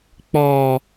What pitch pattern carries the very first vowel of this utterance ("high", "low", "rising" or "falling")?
low